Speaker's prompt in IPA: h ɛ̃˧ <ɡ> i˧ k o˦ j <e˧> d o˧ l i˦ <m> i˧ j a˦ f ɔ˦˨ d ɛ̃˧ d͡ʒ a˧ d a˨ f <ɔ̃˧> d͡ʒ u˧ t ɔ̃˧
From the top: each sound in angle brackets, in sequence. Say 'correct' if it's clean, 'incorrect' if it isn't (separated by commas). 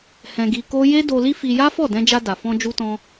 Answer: correct, incorrect, incorrect, correct